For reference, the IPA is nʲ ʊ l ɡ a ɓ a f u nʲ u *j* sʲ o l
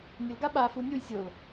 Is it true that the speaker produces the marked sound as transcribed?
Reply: yes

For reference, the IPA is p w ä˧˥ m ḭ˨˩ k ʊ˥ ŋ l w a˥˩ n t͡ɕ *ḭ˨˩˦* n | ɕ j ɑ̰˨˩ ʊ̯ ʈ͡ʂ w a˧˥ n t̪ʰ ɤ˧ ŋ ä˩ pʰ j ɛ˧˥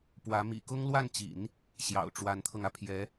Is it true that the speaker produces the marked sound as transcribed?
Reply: yes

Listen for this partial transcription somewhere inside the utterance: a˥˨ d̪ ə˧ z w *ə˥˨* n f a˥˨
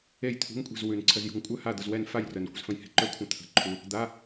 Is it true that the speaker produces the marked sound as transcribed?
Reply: no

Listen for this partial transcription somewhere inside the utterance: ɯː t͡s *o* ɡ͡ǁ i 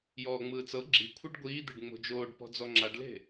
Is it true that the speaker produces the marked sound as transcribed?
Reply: no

